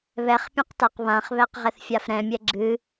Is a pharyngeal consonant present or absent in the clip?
absent